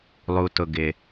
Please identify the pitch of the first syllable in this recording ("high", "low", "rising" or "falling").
low